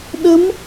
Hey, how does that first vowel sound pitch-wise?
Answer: rising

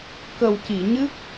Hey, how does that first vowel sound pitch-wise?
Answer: low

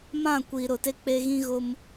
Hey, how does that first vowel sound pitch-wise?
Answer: falling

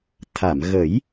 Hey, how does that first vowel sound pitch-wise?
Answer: low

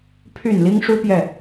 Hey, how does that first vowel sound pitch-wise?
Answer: low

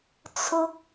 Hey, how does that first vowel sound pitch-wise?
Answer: high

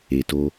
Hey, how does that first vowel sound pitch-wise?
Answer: low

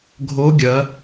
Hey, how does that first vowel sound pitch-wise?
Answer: rising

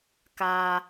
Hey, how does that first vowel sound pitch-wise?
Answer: high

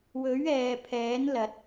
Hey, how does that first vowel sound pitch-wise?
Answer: rising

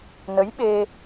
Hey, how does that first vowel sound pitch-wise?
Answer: rising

